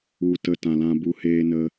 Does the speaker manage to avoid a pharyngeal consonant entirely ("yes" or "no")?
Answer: yes